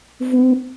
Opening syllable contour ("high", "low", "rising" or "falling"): high